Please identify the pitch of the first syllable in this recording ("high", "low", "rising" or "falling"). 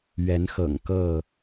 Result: rising